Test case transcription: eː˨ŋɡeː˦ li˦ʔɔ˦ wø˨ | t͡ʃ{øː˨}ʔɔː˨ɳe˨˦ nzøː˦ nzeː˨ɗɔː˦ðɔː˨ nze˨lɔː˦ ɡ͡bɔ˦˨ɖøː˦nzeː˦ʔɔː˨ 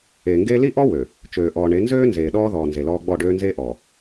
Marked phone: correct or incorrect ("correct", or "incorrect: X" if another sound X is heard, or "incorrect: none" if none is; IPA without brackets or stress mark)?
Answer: correct